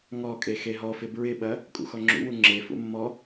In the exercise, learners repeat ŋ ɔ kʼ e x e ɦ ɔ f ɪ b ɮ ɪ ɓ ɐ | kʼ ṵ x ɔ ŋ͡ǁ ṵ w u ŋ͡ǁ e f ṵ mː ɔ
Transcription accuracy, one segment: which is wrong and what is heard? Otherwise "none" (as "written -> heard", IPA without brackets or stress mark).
ɮ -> ɹ